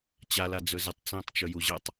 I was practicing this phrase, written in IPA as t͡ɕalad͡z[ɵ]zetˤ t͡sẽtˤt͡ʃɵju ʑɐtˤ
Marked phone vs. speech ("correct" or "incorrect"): correct